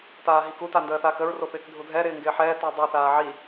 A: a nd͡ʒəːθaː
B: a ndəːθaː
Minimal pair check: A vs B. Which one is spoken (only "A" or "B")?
B